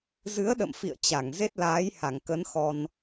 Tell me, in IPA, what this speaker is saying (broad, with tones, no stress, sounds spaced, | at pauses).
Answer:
z ɨ˨˦ ə̯ ɗ ə̰˧˨ m f ḭ˧˨ ə̯ t͡ɕ a˧˩ ŋ z e˦˥ t̚ l aː˨˦ j h a˧˩ ŋ k ə˨˦ n x ɔ˧ n